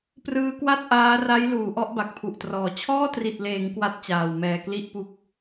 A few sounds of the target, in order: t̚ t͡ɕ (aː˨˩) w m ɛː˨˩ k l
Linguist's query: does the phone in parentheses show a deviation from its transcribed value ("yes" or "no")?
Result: no